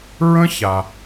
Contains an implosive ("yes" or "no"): no